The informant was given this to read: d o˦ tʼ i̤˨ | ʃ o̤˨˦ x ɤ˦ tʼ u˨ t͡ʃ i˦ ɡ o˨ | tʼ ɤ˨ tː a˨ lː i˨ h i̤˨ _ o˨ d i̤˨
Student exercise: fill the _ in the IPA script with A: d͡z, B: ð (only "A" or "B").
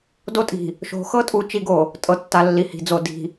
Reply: A